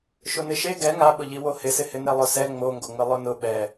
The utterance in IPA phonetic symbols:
ʃʊnɪʃe ɡɛ ŋaɓʊʎiwo hɪsɪhɪ nɛlˠʊsɛ ŋ͡moŋɡoŋ͡mɪ lˠʊnʊ ɓɛ

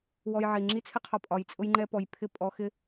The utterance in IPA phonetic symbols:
wɔ˧jʕi˨ ŋ͡ǁi˦t͡sʰɪ˦qʰɒ˧ pʼɒ˧jt͡sʼʊ˦j ŋ͡ǃɛ˦pɔ˧j pʰɪ˦˨ pʼɔ˦ xɪ˦

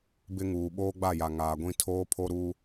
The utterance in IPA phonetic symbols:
bɪ˦ŋuː˨ ɓoː˦ɡ͡ba˦˨ja˨ ŋaː˨ɡʷĩ˦ tʰoː˦pʰo˦ɾuː˦

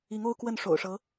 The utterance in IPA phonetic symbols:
i˧˥ŋo˥ʊ̯kwə˥˩n ʂo̰˨˩ʊ̯ʂɤ˧˥

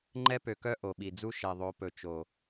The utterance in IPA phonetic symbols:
ŋ͡ǃɛ˦pø˨kœ˦ ʔo˨ɓi˨ d͡zu˦ ʃɛ˨ðˤo˨˦pɵ˨ t͡ʃo˨

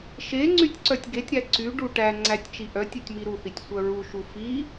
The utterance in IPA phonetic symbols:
ʃe ŋ͡ǀytʲǀœtʲɡetʲɾæ ǀyɖu ʈæ ŋ͡ǀætʲt͡ʃi ʔœtʲ œtʲmiɾuθitʲ sʷœɹuʃu fi

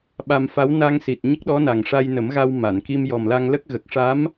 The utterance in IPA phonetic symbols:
ɓa˧mfa˧˥w na˧ŋsi˨˩t̚ ɲə˦˥k̚ɗɔ˧˥na˨˩ŋ ʂa˧jnə˨˩˦mɣa˧w ma˨˩˨nki˧m jɔ˨˩mla˧ŋlə˦˥k̚ ɣə˨˩k̚ ʂa˧˥m

